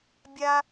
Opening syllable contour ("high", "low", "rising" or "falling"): high